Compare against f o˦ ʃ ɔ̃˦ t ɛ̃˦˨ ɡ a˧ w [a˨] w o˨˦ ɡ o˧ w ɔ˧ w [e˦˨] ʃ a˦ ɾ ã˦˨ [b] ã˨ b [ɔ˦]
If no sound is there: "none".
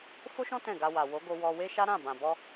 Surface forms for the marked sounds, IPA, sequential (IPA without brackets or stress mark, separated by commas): a˨, e˦, b, ɔ˧